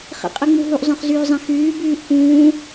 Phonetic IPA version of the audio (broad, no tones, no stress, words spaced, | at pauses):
χḭqʼɨŋ͡muɦuʔ zˤœ̃χzyːzˤĩxyː byːʔkũː